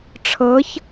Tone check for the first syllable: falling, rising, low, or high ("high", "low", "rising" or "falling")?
rising